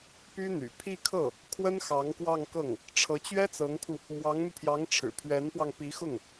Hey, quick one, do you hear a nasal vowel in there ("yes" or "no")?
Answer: no